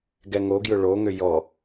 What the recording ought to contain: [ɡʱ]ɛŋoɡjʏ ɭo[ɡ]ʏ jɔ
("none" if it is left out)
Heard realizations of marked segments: ɡ, ŋ

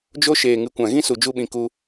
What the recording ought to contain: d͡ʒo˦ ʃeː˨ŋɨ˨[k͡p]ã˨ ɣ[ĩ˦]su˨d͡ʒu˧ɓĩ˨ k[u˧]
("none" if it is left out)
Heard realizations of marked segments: kʷ, ĩ˦, u˧

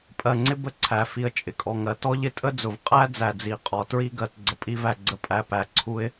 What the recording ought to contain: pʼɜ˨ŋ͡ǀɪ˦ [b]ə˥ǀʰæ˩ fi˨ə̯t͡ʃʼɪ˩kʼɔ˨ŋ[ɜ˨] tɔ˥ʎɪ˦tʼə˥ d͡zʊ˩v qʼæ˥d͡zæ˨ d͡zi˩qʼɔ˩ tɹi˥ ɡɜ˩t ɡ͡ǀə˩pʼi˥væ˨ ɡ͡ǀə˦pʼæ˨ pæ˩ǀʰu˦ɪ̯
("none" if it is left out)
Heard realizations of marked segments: b, ɜ˨

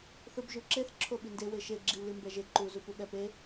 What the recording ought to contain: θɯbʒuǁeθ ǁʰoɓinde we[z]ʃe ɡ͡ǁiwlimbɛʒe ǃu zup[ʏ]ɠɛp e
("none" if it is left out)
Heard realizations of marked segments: none, u

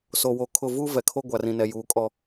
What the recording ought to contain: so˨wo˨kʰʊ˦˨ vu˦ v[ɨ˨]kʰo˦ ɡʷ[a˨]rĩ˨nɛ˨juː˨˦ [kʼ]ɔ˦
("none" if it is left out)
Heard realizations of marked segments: ɛ˨, a˨, kʼ

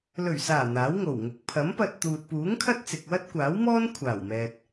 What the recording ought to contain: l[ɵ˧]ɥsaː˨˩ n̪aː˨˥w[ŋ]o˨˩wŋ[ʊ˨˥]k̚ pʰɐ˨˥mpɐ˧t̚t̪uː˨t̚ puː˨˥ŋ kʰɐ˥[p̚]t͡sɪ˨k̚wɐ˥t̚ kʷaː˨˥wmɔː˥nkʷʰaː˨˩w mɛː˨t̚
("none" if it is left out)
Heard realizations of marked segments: ɵ˨˩, ŋ, ʊ˨˥, t̚

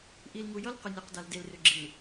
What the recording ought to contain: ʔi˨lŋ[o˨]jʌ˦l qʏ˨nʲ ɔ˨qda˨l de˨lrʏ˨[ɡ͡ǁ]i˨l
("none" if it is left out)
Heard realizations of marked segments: u˨, ɡ͡ǁ

